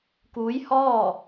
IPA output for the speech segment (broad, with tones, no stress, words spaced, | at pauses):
kuː˧˥jhɔː˥˨